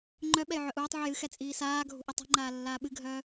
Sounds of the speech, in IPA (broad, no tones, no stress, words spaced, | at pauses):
ŋ͡ǃœ ɓɛjʕœʔuːtˤʕɨj ɨxɛ t͡sʼiːsaːɡʱṳ ʔɛtˤṳŋ͡ǃaː lːaːɓɨɡʱœː